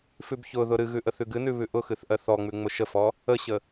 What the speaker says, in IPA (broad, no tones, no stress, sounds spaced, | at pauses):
f ʉ b ç ʊ ð ʊ ɾ ɨ ɣ ʉ ʔ ə θ ʉ ɡ ɨ n ʉ β ʉ ʔ ʊ x ɨ θ ʔ ɜ θ ɔ ŋ͡m ʉ ŋ͡m ʊ ʃ ə f ɔ | ə ɕ ə